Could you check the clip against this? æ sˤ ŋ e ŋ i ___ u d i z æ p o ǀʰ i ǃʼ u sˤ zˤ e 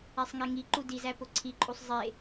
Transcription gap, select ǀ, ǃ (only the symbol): ǃ